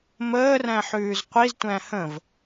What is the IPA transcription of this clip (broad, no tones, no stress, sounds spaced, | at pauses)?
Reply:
m əː r æ̃ ħ ʉː z qʷ i z tʷ æ̃ h ə̃ v